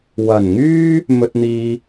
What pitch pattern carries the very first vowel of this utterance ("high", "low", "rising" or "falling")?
low